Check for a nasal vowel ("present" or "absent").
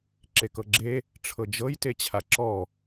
absent